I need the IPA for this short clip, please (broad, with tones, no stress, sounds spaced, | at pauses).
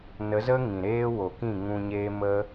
n ə˨˦ z ə˦ ŋ ĩ˨ ɾ eː˦ w o˨ k ĩ˦˨ ŋ ũ˧ ɲ eː˦ m ə˦